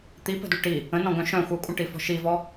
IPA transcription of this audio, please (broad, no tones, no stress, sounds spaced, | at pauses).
t̪ i p ə̤ d u ʈ i | ə̃ n ɔ̃ ɡ œ̃ ʃ œ̃ xʷ œ kʷʼ ə̃ ʈ i f ɔ̤ ʃ i v ɔ